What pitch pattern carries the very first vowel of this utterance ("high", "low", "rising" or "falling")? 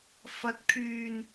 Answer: rising